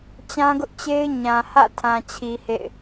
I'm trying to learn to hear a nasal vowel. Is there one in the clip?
yes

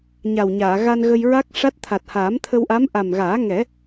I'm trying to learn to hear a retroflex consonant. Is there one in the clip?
yes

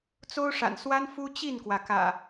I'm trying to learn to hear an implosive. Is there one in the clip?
no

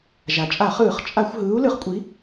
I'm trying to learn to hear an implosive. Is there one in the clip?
no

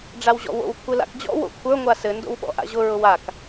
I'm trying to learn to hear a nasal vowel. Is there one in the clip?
no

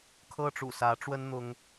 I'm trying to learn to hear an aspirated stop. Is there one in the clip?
yes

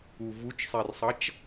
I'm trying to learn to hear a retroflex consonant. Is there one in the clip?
no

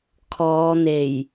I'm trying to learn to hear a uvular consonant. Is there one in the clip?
no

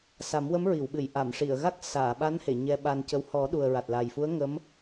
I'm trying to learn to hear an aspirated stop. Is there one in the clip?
no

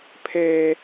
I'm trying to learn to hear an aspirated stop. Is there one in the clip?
yes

